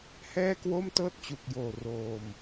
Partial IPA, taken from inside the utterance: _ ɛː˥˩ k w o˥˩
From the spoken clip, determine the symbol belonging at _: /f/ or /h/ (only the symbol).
h